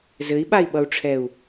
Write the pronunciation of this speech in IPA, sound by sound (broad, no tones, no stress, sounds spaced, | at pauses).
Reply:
z ɘ i̯ ɓ a i̯ ɓ ʌ u̯ ʈ͡ʂʰ ɛ u̯